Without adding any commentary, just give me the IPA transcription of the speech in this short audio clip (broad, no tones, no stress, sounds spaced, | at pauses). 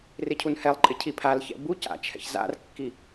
r ɪ cʰ u n h ɛ lˠ ǃʼ ɪ cʰ i pʰ a l ç ɛ̰ b u c a̰ t͡ʃʰ ɛ̰ ç z a̰ r kː i